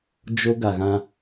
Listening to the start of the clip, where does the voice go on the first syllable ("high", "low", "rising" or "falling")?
high